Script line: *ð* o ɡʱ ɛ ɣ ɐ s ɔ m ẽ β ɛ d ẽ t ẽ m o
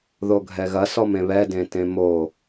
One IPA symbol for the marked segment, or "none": ð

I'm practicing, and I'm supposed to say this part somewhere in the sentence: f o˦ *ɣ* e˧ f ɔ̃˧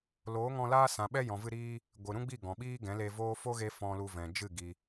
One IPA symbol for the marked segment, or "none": ɣ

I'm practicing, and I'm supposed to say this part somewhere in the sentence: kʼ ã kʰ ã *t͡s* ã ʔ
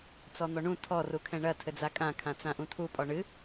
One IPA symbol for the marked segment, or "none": t͡s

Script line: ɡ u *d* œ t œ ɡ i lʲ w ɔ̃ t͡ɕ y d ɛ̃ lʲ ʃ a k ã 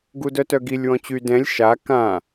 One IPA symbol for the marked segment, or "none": d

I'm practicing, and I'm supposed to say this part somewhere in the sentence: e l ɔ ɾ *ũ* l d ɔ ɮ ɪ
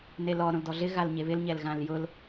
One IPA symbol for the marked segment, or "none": õ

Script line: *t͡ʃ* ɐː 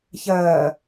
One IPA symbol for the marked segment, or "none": ç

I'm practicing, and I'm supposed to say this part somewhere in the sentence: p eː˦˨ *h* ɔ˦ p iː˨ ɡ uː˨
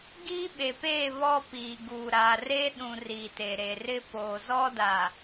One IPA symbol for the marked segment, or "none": β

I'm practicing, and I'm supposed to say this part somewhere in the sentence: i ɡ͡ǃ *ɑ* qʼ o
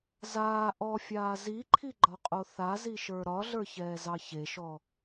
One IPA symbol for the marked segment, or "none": ɒ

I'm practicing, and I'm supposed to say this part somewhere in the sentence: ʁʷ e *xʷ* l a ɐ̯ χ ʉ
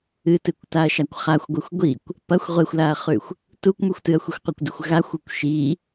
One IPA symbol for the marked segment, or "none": xʷ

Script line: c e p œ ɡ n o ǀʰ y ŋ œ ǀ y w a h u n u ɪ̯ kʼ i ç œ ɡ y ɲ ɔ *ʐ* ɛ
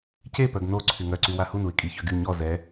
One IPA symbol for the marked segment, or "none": z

